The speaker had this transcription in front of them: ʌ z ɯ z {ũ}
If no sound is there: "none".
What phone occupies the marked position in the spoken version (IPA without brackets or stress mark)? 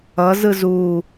u